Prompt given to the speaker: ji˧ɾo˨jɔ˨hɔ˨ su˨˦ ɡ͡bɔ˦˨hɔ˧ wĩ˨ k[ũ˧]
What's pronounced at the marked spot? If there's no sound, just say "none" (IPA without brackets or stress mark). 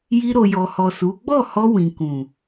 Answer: ũ˨